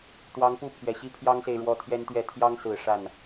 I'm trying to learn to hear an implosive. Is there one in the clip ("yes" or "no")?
no